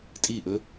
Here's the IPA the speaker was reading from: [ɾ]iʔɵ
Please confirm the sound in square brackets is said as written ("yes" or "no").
no